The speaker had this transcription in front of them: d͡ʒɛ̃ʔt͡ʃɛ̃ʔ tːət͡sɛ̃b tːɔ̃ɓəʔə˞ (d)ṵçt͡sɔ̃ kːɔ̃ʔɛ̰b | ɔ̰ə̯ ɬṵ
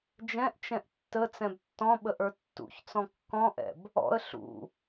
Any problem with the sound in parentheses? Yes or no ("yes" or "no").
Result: yes